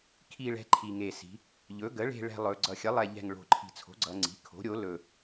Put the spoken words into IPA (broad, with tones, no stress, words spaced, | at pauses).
kʰi˨˩ɭɛ̤˩˧ ǃʰi˨˩ŋe˨˩si̤˩˧ | ʎɵ˩˥ɡə˩˥ ɭe̤˨˩ɭɛ̤˨˩ lˠɵ˩˧ ɡ͡ǀʌ˨˩xʲə˩˥lˠɛ˨˩ ʎɛ̤˨˩ŋ ɭo̤˨˩ǃʰi̤˨˩t͡sʰo̤˩˥ɡ͡ǀʌ˩˧ ŋ͡ǀi̤˩˥ kʰo̤˩˥ɾʲo˩˥ lɵ˨˩